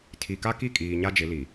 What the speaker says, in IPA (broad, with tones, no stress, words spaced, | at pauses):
tʰi˨ka˦ki˦˨kʼiː˨ ɲa˦d͡ʒɪ˨˦li˨